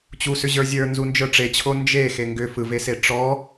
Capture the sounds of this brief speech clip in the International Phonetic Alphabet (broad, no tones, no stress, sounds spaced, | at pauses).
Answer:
t͡ɕ u s ʏ ʑ ə˞ zʲ ə˞ n z u n d͡ʒ ə˞ ʈ͡ʂ e t͡ɕʰ o n d͡ʒ e x e ŋ ɡ ʏ f ɯ v e s e ʈ͡ʂ ɔ